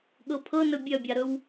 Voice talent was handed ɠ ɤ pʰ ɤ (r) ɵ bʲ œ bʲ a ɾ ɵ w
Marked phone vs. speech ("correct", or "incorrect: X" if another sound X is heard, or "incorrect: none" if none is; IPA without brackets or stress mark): incorrect: n